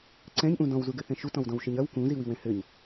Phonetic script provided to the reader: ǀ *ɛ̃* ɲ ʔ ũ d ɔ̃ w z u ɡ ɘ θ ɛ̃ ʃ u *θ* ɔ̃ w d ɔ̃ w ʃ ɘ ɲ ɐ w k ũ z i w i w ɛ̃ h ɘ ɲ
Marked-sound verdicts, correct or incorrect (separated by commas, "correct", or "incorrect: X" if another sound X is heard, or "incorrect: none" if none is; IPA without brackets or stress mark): correct, incorrect: t